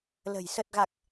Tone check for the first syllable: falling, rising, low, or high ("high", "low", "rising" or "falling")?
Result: low